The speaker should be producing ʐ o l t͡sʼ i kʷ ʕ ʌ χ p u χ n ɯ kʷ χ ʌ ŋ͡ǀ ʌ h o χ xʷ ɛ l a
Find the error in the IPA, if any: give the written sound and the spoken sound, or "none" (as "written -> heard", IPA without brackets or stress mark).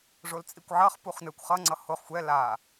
none